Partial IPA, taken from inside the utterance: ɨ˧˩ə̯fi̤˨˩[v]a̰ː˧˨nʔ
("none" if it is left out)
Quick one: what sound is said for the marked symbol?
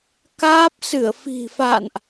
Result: f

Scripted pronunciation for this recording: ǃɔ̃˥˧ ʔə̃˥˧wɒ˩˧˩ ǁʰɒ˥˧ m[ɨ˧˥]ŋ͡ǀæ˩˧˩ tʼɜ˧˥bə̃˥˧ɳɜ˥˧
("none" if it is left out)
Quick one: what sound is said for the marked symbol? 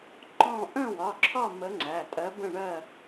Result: ə˧˥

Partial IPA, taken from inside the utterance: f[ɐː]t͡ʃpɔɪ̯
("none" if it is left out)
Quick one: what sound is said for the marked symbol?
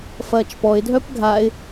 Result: ɐː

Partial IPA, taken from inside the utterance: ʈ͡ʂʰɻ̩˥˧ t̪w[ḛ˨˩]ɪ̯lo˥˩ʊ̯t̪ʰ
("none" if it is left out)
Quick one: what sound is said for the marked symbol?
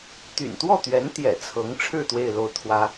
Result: e˥˧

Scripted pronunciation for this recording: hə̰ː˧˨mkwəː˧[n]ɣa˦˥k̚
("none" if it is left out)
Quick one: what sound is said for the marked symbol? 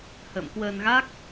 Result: n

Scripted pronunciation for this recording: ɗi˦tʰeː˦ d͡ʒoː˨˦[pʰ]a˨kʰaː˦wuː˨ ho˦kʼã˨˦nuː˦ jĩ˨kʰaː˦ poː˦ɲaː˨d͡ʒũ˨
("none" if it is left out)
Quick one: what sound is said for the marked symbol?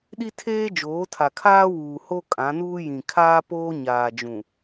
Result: tʰ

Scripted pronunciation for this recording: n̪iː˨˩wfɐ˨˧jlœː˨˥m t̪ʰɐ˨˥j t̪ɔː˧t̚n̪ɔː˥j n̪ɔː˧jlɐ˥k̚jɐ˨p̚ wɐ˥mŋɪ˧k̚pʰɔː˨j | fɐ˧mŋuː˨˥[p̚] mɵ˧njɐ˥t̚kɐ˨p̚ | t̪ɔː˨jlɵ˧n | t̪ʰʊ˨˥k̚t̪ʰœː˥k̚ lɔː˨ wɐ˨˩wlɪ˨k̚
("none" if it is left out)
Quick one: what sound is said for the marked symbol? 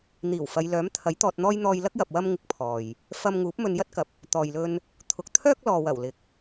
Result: p̚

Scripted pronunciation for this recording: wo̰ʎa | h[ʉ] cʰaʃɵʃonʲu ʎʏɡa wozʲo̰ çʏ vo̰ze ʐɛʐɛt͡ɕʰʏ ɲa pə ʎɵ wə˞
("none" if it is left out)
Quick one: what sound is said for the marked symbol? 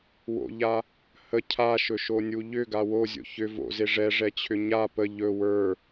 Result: ə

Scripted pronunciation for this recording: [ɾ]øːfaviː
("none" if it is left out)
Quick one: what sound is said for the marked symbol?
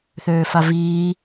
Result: θ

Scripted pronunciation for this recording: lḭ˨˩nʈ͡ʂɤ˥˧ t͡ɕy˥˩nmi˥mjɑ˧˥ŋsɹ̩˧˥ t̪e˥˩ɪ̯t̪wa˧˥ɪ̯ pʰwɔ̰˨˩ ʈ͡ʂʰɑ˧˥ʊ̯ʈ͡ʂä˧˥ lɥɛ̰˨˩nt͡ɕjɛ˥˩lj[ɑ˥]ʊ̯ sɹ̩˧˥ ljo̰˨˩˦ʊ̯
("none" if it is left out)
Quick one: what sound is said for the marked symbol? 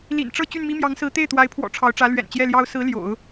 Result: ɑ˥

